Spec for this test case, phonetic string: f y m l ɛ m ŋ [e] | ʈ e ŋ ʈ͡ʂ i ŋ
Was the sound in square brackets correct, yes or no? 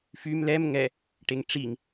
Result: no